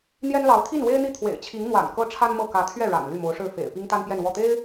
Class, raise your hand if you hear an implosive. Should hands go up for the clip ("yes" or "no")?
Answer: no